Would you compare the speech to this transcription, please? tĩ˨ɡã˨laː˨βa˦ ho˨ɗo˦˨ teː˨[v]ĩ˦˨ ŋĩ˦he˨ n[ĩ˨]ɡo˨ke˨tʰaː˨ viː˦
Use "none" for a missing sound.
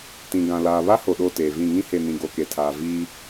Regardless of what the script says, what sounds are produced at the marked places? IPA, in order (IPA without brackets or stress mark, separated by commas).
v, ĩ˨